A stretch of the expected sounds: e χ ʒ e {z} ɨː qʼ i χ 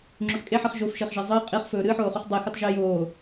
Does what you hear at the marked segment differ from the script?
yes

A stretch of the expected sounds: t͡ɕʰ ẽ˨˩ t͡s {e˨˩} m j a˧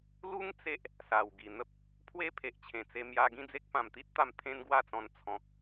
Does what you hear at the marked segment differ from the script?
yes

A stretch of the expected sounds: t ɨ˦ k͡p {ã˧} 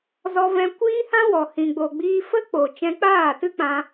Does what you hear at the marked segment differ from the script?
no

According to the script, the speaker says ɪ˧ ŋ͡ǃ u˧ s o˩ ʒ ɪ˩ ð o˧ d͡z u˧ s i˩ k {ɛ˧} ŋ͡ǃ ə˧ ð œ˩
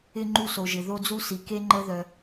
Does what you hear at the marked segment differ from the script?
yes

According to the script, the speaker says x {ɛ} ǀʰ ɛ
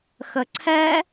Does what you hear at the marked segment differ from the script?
yes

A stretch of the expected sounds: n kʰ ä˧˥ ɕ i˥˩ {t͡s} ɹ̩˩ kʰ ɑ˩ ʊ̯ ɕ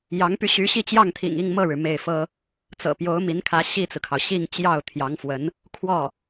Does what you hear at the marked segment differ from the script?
no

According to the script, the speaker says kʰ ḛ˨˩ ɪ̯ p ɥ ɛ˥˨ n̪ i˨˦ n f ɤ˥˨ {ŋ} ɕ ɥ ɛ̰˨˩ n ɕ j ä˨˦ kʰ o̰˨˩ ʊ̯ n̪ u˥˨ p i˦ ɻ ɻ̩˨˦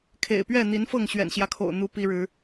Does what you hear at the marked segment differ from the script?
no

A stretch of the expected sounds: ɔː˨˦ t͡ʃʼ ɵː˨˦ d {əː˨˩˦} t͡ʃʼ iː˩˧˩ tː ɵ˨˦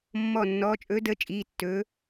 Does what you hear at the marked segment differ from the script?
yes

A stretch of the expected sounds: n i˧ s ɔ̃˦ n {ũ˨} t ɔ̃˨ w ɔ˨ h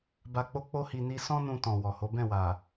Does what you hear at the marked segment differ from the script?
yes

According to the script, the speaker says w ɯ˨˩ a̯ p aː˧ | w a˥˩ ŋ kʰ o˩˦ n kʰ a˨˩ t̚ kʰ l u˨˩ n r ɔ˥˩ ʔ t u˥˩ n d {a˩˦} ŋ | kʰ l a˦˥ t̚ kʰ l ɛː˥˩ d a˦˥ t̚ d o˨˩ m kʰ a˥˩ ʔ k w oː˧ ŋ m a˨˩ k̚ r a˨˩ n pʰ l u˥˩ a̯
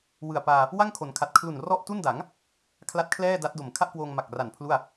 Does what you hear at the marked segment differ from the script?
no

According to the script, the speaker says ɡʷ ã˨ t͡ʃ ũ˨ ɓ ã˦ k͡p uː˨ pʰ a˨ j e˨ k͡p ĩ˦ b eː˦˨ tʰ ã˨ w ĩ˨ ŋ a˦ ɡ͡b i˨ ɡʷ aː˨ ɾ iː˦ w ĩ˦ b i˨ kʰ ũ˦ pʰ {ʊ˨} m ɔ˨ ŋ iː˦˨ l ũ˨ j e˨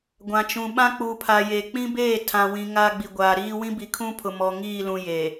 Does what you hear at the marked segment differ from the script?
no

